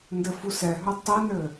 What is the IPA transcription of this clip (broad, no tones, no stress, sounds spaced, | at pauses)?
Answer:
n d ɘ f u s ɛ ɦ œ tˤ i n ɘ